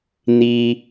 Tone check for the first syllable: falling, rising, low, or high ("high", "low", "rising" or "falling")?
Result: high